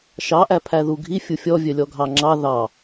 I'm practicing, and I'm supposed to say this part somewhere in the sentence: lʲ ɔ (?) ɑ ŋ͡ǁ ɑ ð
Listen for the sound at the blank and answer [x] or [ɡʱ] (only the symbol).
ɡʱ